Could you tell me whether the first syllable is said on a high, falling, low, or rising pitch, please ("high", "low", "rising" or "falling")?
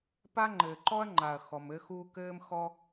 high